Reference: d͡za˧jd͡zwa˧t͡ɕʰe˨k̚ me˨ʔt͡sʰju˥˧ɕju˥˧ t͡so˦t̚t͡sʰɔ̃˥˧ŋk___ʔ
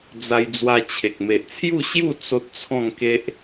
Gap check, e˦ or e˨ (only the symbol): e˦